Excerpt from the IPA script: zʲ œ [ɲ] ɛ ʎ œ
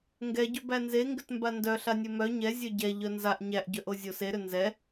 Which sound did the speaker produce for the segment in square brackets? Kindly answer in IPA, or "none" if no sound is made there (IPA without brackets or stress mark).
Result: ɟ